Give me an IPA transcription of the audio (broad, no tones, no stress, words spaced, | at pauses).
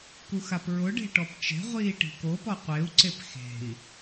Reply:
kuxapɹʊ ɖe̤ʈɔpt͡ʃe̤ ʁʷiːʈi̤ko pɔqʷeu̯ǀep xe̤i̯